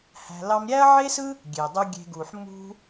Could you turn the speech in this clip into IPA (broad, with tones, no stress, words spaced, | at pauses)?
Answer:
hæ̤˧lɑ˦m ɾʲæ˦ɐ̯ʕe˦sɯ˦ | ɡʲe˨dˤu˦ ɡʲe̤˧ɡu˨ħ mṳ˦